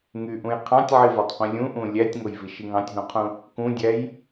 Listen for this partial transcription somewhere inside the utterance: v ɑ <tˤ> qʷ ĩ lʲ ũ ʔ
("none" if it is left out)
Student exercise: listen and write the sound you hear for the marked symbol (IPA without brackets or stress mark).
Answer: tˤ